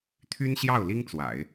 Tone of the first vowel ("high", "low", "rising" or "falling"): high